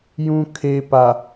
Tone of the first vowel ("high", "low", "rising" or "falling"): low